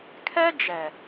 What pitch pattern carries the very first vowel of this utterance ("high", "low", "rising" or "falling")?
high